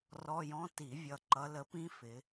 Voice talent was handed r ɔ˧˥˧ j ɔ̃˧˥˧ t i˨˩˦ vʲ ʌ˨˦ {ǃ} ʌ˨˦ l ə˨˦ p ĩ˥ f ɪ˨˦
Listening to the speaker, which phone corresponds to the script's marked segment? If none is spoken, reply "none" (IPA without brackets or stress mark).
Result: ǃ